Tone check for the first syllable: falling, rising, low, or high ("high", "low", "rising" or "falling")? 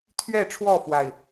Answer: falling